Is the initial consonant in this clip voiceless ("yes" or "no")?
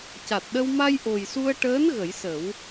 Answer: yes